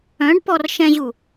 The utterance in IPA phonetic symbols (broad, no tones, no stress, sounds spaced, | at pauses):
œ̃ ɖ p ɔ r ʃ ɛ̃ ʑ u